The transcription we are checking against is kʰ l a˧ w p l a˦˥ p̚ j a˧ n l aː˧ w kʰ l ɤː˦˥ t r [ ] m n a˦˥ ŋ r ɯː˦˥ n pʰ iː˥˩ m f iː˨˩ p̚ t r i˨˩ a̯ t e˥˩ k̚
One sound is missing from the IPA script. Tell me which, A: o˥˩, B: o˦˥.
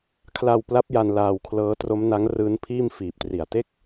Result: B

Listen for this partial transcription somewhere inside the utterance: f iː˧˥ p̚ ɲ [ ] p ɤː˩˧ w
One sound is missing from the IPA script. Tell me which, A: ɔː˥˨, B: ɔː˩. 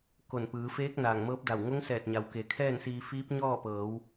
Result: A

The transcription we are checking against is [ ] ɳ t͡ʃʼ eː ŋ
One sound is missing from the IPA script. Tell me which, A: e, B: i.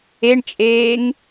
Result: A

